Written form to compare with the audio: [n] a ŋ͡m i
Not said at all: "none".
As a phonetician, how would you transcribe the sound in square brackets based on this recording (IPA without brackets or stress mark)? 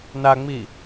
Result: n